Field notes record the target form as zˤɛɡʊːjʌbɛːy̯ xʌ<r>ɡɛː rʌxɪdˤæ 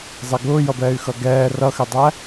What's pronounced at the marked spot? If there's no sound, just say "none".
none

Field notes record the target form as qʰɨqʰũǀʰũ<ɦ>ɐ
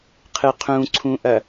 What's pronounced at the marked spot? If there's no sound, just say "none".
ʔ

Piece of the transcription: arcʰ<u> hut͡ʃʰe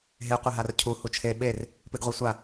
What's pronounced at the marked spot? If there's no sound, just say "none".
u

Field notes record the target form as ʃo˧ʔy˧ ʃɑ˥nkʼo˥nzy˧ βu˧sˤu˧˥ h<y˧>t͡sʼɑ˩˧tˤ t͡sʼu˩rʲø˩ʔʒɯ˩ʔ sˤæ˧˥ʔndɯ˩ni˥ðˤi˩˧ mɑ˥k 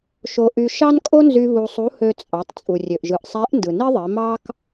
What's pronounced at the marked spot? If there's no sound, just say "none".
ø˧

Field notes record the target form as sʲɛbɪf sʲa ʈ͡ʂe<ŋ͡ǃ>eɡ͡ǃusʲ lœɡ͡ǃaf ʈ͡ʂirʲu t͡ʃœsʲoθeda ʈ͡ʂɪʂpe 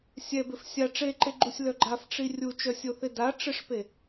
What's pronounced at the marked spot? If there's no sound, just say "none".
ǃ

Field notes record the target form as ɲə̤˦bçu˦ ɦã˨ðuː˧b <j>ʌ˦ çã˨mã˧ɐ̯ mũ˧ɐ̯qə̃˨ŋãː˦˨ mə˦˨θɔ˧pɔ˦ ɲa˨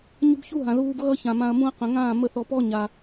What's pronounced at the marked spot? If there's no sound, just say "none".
ɣ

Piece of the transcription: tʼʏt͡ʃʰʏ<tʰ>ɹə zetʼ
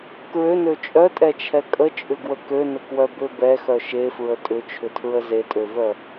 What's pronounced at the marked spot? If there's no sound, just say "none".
tʰ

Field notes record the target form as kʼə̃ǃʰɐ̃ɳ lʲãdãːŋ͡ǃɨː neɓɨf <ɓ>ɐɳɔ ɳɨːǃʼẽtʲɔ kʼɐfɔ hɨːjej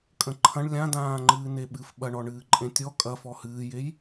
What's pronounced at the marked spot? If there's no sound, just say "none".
ɓ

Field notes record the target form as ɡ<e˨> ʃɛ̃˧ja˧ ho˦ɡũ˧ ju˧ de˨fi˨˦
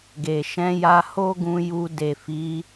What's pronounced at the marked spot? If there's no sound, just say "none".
e˨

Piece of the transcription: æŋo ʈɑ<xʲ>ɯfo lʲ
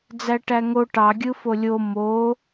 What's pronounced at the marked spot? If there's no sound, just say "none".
ɡʲ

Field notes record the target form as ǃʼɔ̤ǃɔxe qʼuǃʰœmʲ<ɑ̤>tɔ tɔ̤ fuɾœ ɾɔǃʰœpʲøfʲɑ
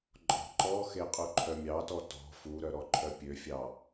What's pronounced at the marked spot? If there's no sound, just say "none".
ɑ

